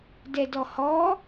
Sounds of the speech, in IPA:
d ɛ d ɔ h ɔ

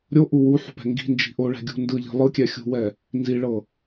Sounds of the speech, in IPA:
ɾʲ o ʔ u w u ħ ṳ p ɛ̤ ŋ ɡ i̤ n d͡ʒ i̤ ʔ o ɭ ɛ̤ ɡʲ ṳ n d ɯ ʎ i̤ lˠ ɯ kʲ ɛ xʲ ṳ w ɛ | n z i ɭ ɤ

